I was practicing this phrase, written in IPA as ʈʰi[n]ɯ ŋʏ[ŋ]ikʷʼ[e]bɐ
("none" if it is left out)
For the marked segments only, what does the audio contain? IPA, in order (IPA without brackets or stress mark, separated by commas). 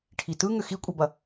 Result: t, x, e